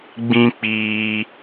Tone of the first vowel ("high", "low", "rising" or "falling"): high